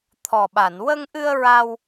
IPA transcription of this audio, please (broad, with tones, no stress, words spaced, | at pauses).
t̪ʰɔ˨˩ɓa˨˩˨n wə˧ŋʔɨ˧ə̯ ɹa˧w